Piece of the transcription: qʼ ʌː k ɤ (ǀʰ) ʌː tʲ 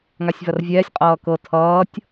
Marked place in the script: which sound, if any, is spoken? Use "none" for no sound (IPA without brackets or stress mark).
tʰ